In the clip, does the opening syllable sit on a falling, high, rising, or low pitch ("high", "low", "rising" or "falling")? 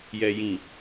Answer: low